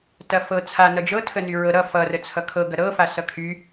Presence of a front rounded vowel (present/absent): present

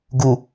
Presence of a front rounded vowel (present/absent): absent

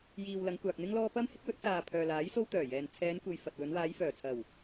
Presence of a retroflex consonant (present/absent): absent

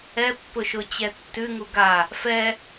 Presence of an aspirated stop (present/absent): absent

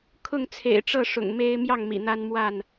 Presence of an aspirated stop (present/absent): present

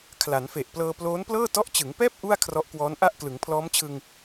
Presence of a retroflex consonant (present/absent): absent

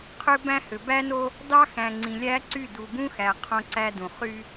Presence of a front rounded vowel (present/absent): present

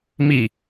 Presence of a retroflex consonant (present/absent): absent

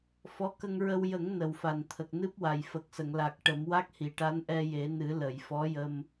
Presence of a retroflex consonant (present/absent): present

